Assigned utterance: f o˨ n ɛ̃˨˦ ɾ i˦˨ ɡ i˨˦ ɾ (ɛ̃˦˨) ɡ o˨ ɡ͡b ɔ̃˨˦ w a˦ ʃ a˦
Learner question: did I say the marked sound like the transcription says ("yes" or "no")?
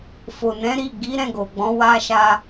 yes